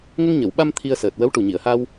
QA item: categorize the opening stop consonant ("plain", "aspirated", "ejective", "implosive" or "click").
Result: implosive